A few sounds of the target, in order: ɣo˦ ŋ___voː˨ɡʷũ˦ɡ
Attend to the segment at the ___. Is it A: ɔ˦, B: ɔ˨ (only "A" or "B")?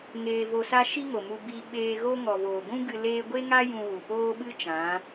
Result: B